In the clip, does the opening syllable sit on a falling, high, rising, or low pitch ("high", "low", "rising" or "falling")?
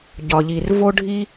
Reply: low